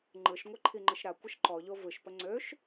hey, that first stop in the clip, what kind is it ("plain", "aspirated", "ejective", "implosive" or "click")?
click